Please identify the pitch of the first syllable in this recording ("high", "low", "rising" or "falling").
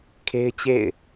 high